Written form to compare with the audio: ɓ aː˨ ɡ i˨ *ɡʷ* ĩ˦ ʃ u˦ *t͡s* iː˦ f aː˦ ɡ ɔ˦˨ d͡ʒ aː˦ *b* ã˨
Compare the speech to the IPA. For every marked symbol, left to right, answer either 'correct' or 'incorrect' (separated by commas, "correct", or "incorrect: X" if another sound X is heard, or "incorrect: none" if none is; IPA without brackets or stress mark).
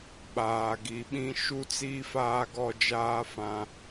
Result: incorrect: ɓ, correct, incorrect: f